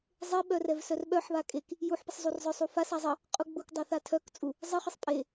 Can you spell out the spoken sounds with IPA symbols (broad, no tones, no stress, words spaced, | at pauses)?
zˤe ɓœrɛvsœrɓœħ βakʼek | juħpəsˤzˤur zˤœsˤufas azˤə | qʼuɡ͡buk dˤaθatʰœk t͡sʼu | zˤəχəsˤ pʼe